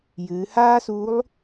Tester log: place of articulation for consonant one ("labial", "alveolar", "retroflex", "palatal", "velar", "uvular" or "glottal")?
palatal